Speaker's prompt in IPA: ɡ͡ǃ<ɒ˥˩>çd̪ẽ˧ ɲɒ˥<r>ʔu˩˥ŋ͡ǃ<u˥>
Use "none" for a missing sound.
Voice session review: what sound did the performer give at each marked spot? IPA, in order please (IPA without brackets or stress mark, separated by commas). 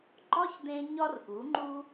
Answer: ɒ˥, r, u˥